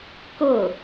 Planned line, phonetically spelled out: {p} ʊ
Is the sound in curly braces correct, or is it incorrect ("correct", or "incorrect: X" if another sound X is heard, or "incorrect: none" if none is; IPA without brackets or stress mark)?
incorrect: k